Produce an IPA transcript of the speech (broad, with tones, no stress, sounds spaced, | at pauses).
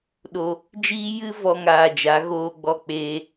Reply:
ɗ o˧ | d͡ʒ iː˦ j ɨ˦ v ɔ˦ ŋ aː˧ d͡ʒ a˨˦ ɣ oː˦ ɡ͡b ɔ˦ k͡p eː˦